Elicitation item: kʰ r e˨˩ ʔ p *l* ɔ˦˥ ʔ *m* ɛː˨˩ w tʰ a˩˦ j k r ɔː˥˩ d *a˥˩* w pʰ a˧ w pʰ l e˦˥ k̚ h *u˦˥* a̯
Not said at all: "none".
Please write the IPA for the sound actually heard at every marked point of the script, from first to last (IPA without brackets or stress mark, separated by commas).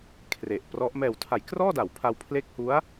r, m, a˩˦, u˦˥